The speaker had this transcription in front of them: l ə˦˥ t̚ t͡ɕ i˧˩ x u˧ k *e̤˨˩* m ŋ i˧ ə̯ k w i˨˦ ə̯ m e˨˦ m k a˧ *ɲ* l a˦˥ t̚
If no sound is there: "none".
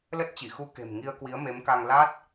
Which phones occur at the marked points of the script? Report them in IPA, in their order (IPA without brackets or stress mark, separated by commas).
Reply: e̤˨˩, ŋ